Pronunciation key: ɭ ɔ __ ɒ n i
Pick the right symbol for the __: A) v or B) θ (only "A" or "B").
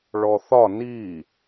B